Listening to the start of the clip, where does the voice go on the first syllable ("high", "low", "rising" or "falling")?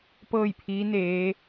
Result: falling